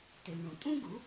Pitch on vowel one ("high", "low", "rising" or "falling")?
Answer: low